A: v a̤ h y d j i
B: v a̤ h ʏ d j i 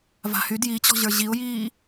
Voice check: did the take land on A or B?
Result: A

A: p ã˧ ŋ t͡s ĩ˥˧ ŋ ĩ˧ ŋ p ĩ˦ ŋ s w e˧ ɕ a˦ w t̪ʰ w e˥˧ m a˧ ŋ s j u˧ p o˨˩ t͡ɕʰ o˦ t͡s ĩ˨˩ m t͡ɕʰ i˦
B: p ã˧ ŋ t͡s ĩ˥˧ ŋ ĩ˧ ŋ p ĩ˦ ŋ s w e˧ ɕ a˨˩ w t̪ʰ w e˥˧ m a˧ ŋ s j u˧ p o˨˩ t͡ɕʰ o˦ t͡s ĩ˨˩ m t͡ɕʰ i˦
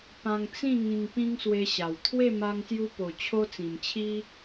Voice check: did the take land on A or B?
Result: B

